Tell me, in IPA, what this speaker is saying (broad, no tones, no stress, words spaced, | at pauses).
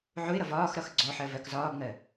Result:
ʕʊɪ̯ɾʌv ɒːx ɾʌxɡ͡ǀɔħɜ vɜkzɒːbŋɜ